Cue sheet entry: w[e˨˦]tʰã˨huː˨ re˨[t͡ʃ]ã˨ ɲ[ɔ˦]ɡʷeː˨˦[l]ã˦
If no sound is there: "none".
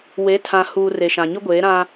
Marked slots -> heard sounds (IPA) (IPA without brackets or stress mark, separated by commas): e˨˦, ʃ, ʊ˦, ɾ